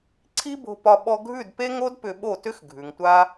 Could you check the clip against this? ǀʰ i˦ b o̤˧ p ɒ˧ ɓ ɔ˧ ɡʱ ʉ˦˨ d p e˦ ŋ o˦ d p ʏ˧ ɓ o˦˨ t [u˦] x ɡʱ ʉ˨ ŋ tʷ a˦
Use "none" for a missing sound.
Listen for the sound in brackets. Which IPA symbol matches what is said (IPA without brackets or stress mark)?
ʏ˦